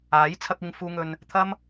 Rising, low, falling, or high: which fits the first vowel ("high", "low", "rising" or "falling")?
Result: rising